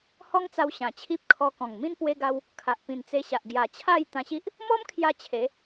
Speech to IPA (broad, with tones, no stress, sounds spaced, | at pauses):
h ɔ˦ ŋ t͡s a˧ w ɕ ã˨˩ t͡ɕʰ i˦ p̚ kʰ ɔ˧ k ɔ̃˨˩ ŋ m ĩ˦ n p w e˦ ɡ a˦ w | kʰ a˨ ʔ p ĩ˨˩ n t͡s e˧ ɕ a˨ ʔ ɡ j a˨˩ t͡ɕʰ a˥˧ j t̪ ã˧ ɕ i˦ ʔ | m ɔ˦ m kʰ j a˧ t͡ɕʰ e˨˦